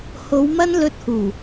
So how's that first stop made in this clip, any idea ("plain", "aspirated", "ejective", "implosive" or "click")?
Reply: plain